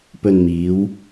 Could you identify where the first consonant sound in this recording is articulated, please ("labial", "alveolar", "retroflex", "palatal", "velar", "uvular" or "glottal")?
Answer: labial